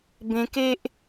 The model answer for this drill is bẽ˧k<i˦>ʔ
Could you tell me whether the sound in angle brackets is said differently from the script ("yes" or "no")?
yes